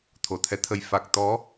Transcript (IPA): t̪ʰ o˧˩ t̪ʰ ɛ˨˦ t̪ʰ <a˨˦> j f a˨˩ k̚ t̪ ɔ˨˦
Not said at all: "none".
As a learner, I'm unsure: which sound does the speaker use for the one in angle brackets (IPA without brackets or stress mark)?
ə˨˦